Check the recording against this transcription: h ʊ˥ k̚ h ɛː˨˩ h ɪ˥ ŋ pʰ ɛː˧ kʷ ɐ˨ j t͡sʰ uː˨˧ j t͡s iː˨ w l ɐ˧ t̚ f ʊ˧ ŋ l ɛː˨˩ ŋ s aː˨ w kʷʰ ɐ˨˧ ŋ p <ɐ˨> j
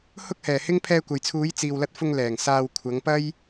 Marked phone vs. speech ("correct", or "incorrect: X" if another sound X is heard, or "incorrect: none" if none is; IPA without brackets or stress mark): incorrect: ɐ˥